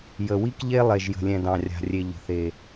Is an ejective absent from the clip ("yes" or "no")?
yes